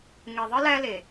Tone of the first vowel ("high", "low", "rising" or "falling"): low